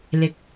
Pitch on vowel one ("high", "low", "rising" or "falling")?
rising